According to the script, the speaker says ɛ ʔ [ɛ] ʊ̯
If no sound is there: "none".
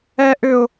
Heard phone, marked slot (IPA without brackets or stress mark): ʏ